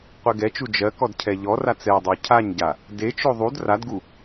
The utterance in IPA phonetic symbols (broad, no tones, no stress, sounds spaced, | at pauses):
qʷ e ɡ ɛ t͡ʃ u d͡ʒ ɜ k ɔ d cʰ ɛ ʎ ɔ r a t͡s ɛ dˤ o cʰ a ɲ ɟ a | d e t͡ʃ o ðˤ u d r a d ɡ u